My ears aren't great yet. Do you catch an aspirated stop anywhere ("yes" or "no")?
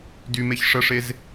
no